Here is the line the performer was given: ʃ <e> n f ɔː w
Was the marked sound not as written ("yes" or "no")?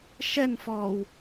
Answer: yes